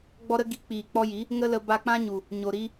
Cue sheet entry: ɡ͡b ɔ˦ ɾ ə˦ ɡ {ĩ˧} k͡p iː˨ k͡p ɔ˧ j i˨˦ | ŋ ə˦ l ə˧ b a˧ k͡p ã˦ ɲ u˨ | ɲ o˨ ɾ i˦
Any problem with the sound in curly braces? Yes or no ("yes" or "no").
yes